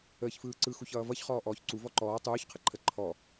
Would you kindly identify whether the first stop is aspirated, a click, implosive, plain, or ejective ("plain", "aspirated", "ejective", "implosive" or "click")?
click